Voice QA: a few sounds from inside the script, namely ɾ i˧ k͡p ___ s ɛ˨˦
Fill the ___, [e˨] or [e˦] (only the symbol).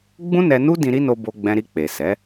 e˨